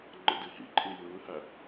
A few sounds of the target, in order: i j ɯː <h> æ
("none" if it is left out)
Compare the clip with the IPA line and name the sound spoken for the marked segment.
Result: h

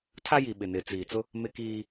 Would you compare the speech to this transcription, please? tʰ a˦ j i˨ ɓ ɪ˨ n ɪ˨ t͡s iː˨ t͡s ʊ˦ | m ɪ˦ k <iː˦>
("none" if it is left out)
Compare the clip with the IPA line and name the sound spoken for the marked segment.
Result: iː˦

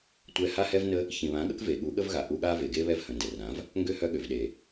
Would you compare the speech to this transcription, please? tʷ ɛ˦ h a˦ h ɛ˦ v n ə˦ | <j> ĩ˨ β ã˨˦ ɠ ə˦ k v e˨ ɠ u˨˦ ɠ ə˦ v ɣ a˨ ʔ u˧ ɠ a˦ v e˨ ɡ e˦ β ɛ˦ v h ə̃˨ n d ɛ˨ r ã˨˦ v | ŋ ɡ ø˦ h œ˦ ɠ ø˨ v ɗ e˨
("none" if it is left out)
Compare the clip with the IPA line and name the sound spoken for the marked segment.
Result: ç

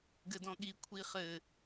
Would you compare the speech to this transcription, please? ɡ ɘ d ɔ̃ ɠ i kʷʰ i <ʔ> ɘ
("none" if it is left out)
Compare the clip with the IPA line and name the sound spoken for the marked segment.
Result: χ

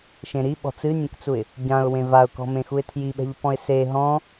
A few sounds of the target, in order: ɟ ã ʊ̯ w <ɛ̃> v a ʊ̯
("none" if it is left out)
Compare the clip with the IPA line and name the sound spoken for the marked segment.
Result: ẽ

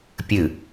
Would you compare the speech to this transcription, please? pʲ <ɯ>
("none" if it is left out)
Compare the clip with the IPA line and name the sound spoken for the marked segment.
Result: ɯ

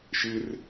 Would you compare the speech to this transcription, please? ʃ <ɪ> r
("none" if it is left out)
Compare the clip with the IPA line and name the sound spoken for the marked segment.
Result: ɪ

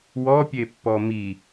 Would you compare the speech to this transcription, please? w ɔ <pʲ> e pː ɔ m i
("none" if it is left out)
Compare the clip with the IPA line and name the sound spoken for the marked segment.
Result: pʲ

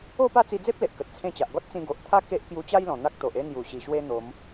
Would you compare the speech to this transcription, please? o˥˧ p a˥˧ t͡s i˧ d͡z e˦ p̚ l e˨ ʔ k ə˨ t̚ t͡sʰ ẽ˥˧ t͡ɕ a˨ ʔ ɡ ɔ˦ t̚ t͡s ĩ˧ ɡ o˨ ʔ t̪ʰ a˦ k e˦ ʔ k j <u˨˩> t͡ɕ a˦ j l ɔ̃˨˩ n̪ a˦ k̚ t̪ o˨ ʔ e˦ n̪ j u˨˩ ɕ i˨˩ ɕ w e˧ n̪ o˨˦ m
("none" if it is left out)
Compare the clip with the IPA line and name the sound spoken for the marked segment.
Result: u˧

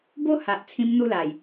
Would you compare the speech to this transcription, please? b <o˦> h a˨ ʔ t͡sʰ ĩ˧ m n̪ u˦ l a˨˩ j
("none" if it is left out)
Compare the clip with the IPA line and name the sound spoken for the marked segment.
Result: o˦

